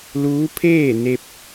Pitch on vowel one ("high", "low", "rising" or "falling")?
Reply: rising